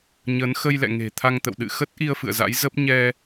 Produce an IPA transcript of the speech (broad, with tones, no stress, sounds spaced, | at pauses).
ɲ əː˨˦ n x ə˧ j l ɛ̰˧˨ ŋ e̤˨˩ t̪ʰ a˧ ŋ t̪ ə̰˧˨ w ɗ ɨ̰˧˨ x ə˦˥ t̚ ʔ i˧ ə̯ f ɨ̰˧˨ ə̯ z a̰˧˥ j z ə˦˥ p̚ ɲ ɛ˧